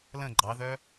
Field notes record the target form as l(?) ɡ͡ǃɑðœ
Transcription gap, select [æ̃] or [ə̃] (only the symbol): ə̃